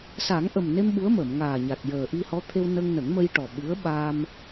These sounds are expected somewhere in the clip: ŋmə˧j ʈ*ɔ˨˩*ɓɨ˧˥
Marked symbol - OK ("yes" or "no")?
yes